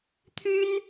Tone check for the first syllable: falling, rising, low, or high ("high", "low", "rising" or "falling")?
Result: high